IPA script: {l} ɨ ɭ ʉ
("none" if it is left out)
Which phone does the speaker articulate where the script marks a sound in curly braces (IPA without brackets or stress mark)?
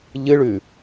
ʎ